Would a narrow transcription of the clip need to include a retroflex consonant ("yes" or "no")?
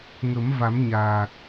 no